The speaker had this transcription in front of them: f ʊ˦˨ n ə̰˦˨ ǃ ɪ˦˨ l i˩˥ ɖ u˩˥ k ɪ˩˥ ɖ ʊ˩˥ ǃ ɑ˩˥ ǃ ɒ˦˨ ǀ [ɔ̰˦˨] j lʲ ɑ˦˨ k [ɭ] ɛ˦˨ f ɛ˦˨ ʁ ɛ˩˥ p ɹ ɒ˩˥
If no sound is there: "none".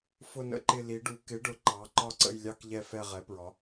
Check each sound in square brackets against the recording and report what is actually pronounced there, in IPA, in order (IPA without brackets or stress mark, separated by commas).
ə̰˦˨, ʎ